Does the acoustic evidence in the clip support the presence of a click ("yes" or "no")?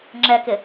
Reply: yes